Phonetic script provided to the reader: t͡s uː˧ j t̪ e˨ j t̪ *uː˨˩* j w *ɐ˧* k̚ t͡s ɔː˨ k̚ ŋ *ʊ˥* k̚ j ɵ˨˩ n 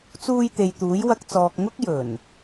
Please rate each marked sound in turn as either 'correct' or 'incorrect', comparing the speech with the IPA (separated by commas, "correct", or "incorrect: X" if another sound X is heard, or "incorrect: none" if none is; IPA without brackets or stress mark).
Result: incorrect: uː˨˥, correct, correct